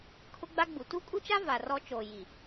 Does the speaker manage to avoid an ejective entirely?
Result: no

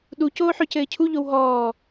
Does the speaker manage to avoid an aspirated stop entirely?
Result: no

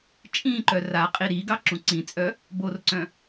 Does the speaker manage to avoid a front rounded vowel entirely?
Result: no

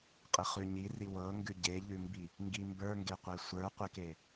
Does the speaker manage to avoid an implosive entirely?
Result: yes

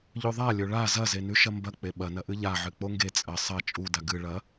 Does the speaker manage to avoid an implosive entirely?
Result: no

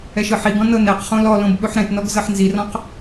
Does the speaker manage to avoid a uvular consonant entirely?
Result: no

